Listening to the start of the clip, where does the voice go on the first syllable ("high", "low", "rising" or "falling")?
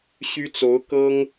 high